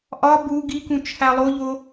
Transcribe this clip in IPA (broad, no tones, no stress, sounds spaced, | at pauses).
ʔ ɒ b u ɡ i k ũ t͡ʃʰ æ lˠ o ʎ o